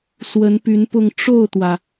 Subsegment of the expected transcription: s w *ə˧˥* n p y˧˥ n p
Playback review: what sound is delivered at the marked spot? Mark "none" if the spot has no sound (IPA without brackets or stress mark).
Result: ə˧˥